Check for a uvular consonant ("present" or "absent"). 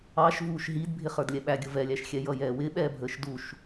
present